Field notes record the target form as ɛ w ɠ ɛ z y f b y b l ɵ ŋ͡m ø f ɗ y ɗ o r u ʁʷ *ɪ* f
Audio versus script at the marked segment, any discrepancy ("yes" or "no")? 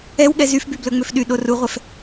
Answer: yes